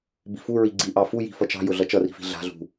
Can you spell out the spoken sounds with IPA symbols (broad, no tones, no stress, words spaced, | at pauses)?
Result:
bi̤fu ɹiɡ͡ǀi ʔɑfuji̤fʌ t͡ʃɑ̤jʊ ɮʌt͡ʃʌri̤fi̤ ɮa̤ɮṳ